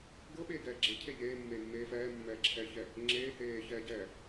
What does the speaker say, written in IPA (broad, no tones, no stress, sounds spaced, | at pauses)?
ɡ ɤ ɓ eː ɡ ɛː ɡ͡ǁ e cʰ e ʎ eː mː eː mː eː f ɛː mː ɛː ǁʰ ɛː ç ɛ | ŋ͡ǁ eː h eː ç ɛː ɟ ɛː